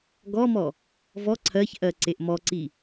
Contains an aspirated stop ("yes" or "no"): yes